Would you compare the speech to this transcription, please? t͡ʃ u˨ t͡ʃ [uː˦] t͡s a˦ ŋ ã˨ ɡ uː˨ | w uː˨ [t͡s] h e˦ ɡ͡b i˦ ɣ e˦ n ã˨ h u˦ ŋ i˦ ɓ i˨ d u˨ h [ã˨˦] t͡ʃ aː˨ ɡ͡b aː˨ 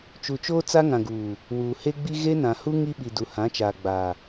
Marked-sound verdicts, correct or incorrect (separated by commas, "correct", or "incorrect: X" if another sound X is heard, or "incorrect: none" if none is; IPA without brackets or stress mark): incorrect: oː˦, incorrect: none, correct